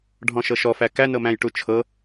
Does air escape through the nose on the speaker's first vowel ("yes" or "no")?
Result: yes